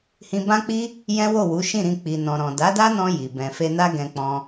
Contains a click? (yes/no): no